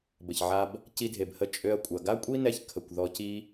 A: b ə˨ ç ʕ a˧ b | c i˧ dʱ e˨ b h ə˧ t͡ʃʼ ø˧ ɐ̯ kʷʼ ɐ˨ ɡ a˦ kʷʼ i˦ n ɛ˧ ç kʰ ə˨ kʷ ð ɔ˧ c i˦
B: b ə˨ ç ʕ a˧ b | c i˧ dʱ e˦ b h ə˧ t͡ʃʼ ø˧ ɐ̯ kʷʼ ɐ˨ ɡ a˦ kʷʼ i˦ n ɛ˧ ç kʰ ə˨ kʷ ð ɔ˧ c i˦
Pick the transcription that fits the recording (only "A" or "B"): A